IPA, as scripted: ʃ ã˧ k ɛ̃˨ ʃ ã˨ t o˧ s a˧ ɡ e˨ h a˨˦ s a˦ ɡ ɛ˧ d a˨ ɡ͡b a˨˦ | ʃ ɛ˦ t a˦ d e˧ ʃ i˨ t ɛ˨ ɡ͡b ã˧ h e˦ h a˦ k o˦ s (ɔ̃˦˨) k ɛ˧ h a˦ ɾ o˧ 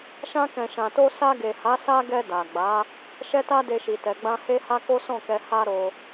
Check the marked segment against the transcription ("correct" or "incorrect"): correct